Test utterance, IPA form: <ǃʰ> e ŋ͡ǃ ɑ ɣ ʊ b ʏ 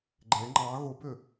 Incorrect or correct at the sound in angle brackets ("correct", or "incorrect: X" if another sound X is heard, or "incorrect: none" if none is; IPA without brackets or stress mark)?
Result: incorrect: ɡ͡ǃ